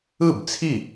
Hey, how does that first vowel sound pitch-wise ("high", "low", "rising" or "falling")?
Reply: falling